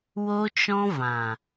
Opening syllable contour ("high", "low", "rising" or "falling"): high